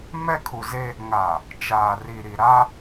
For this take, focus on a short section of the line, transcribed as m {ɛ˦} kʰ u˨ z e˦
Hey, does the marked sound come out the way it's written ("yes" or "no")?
yes